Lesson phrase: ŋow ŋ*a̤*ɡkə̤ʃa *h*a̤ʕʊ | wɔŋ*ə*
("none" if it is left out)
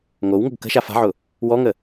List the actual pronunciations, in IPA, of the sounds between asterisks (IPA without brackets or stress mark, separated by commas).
ə̤, f, ə